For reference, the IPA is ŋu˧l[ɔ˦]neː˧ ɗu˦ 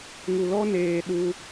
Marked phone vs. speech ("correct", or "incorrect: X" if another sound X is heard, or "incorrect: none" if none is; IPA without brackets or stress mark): correct